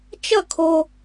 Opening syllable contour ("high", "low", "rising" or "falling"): falling